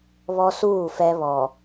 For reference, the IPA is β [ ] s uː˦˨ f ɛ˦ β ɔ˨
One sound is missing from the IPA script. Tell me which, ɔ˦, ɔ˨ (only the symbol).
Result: ɔ˦